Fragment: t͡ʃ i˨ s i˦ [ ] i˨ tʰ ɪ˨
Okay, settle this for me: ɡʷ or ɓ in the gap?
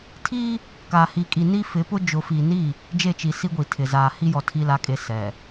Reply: ɡʷ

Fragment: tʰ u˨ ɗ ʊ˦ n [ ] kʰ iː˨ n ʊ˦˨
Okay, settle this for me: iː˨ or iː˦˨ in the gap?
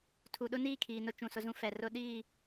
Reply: iː˦˨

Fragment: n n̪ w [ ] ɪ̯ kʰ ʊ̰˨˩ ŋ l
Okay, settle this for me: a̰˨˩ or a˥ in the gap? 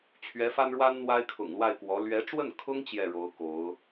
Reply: a˥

